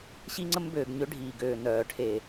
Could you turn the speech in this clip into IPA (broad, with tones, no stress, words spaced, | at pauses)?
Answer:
ɕi˦ŋ͡ǀə˦m bøː˨ɡɲø˦ɖʱiː˨ɡøː˨ nœː˨ ʈʰe˨